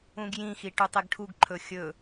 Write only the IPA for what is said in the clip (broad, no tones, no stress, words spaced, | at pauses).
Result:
ũɡjĩxi ʈʉtˤeɡʈʰuɡǃʰɵ xʲɵ